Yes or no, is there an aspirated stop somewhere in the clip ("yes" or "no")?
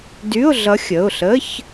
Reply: no